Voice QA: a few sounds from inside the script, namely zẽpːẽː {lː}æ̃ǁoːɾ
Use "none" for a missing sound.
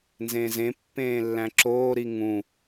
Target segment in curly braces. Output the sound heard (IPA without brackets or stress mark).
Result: lː